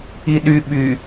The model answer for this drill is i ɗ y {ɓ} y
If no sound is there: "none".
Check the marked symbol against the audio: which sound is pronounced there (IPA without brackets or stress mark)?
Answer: ɓ